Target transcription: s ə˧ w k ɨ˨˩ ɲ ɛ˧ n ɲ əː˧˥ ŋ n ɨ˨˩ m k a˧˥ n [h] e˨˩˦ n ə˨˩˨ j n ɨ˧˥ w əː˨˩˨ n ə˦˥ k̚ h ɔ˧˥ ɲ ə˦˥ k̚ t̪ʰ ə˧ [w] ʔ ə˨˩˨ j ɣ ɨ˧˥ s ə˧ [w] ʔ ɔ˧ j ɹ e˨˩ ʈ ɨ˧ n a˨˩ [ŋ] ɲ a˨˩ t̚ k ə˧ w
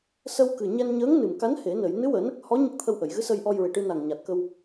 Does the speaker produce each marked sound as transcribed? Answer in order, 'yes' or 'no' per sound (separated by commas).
yes, yes, no, yes